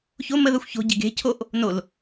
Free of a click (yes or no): yes